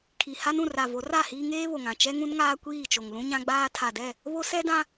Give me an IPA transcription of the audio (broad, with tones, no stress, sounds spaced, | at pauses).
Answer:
kʰ i˨ h a˦ n ũ˨ r a˨ v o˨˦ r a˦˨ h iː˦ ŋ eː˦ β o˨ ŋ ã˨ t͡ʃ ɛ˦ ŋ ũ˦ n ŋ aː˦ kʷ iː˦˨ t͡ʃ o˨ ŋ l ũ˦ ɲ ã˦ ɡ͡b aː˦ tʰ a˨ d ɛ˦˨ | β o˦ s ɛ˦ d ã˦